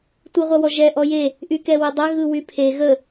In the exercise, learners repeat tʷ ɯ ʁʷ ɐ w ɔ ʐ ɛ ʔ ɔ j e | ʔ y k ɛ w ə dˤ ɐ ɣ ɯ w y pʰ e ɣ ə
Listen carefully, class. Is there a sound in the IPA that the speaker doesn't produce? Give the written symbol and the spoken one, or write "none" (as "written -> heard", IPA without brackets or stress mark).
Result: ʐ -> ʒ